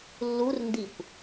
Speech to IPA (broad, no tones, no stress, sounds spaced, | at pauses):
lː u r n d i kʷ